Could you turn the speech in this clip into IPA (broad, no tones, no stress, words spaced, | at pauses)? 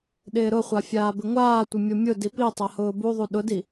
ɗɪːɾʊχʷa fʲaːbɪŋʷaːtʷɪ mʲomʲʊdi pi tˤahʊːbuðˤu ɗʊdi